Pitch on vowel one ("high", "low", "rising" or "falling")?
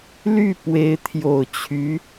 falling